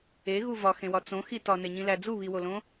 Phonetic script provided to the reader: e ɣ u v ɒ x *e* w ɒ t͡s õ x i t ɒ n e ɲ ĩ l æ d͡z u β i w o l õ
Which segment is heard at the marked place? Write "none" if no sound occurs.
ẽ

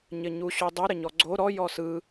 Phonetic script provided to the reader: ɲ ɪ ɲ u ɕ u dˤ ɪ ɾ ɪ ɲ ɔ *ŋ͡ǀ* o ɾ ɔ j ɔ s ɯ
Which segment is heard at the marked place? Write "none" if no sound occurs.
ɡ͡ǀ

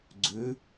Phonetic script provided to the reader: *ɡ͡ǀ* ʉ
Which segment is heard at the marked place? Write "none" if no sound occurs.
ɡ͡ǀ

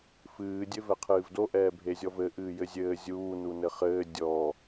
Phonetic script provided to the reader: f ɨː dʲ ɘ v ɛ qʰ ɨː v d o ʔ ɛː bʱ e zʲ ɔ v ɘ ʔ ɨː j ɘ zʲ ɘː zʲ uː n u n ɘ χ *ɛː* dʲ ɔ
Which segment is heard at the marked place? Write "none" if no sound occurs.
ɘː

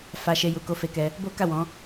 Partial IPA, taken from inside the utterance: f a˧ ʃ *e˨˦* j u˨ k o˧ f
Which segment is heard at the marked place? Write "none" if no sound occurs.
e˧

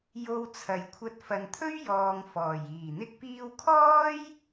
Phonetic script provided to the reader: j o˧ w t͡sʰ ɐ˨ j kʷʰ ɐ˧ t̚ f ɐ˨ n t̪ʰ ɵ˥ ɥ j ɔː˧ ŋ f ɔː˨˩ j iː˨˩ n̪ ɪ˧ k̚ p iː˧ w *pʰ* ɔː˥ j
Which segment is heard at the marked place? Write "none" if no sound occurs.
kʰ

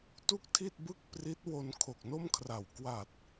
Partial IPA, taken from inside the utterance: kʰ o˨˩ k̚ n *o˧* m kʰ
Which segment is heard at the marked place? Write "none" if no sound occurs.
o˥˩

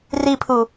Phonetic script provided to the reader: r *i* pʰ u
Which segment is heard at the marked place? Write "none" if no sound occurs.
i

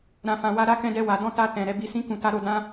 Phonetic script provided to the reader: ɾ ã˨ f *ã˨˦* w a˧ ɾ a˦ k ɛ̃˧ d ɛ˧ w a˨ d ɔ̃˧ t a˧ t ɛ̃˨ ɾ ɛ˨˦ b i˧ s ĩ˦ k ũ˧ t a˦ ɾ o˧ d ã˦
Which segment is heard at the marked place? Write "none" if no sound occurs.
ã˨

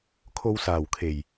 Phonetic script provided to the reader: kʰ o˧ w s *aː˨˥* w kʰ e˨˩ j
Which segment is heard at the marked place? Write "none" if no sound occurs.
aː˨˩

